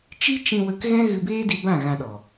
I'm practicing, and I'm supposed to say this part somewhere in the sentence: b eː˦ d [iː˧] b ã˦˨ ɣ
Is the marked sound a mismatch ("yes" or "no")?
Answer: yes